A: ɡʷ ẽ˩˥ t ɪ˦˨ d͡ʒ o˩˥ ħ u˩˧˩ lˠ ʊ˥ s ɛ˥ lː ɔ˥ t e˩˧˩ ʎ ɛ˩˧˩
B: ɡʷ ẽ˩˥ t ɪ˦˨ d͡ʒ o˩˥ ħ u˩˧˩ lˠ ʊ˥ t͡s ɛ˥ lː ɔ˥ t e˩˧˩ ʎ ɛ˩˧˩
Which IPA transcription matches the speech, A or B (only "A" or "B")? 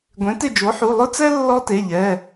B